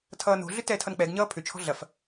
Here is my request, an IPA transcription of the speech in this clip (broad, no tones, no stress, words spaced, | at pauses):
tʰʌːno̤ɮʏ tɛːtʰʌnk͡pɛɡɲʌː pʰʏt͡ʃʰɔ̤ ɮɐf